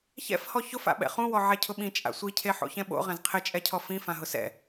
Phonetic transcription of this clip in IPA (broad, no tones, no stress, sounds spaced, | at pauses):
ç ɛ̰ f h ɔ ç ʊ f a̰ ɓ ɛ̰ χ ũ w ɔ ʕ ɛ cʰ ʊ ɓ ĩ t͡ʃʼ a̰ sʷ i cʰ e ħ o̰ ç ɛ̃ ɓ o̰ ʁ ɛ̃ z qʰ ɪ t͡ʃʼ ɛ cʰ ɔ f ĩ f ã ɦ ʊ s ɛ̰